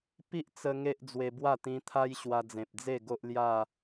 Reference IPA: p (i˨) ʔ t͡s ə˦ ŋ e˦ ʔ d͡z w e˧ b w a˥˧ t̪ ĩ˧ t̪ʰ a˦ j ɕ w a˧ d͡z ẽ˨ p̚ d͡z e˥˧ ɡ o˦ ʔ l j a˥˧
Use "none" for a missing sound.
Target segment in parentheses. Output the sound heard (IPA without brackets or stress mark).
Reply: i˦